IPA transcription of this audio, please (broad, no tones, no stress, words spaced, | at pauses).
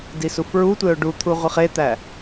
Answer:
disufɹutʷeʊ̯ ɖut̪ʰu ʁʷiχet̪æ